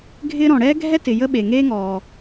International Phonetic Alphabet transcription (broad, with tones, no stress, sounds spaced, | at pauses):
ɡʱ ɪː˥ ɾ ɔ̃˨ ɽ ɛː˥ ɡʱ ɛ˥ t ɪ˨ j ə˥ ɓ e˨ ŋ eː˥ ŋ ɔː˨